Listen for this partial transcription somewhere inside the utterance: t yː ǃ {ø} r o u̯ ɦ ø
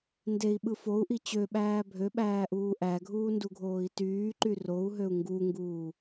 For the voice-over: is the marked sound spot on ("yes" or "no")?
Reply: no